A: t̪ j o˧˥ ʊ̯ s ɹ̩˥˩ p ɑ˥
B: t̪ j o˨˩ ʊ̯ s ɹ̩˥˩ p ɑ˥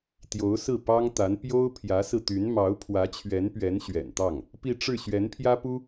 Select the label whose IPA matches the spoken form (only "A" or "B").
A